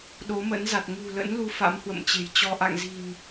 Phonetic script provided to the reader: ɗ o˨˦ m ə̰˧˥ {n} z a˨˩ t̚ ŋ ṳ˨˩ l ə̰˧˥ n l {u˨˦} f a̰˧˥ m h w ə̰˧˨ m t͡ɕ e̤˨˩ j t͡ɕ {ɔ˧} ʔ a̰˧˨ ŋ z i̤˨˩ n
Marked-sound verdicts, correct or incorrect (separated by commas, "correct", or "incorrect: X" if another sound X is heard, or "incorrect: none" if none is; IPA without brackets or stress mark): correct, correct, correct